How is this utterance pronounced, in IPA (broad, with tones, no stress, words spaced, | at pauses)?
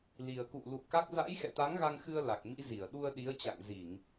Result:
li˨˩ə̯kṵ˧˨ lṵ˧˨ə̯ka˦˥k̚ za̰˧˥jxɛ̰˧˨t̪a˨˦ŋ ɣa˧ŋxɨ˧ə̯ la˨˩k̚mḭ˧˥zi˧˩ə̯ ɗu˧ə̯ɗi˨˦ə̯t͡ɕa̰˧˨ŋ zi˧˩˨ŋ